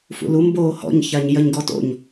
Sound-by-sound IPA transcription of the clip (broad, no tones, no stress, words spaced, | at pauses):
fṵlu mboːhɔ̰ɲ çaɲjɐɲɡɔto̰ɲ